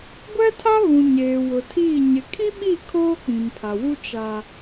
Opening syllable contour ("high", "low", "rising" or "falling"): high